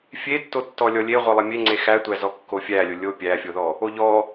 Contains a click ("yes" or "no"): yes